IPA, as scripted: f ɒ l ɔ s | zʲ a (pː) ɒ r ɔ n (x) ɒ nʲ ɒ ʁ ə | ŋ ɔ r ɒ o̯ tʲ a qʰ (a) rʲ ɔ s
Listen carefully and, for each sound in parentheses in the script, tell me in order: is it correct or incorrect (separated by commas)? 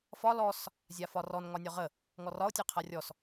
incorrect, incorrect, correct